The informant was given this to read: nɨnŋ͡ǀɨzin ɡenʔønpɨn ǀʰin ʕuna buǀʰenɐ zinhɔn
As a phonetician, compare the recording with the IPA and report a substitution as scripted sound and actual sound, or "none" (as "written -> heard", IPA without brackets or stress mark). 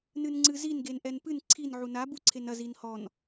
ø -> ɛ